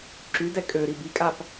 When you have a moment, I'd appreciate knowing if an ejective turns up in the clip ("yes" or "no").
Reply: yes